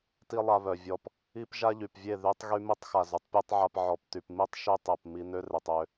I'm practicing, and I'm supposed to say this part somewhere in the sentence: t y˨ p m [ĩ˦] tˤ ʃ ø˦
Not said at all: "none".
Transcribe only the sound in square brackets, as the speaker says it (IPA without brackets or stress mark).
i˦